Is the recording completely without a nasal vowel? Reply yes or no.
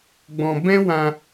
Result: no